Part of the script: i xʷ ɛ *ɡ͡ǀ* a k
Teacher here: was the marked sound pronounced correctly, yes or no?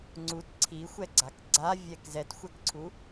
yes